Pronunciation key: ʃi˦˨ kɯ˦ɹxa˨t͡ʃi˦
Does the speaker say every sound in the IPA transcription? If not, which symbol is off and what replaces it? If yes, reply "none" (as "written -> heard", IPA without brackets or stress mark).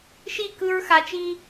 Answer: none